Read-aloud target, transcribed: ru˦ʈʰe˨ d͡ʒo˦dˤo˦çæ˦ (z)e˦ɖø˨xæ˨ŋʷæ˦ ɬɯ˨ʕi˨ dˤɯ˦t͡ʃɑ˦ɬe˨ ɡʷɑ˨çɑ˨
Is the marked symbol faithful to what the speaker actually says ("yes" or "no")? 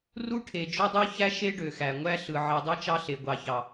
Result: no